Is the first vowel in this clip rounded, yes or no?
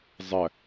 no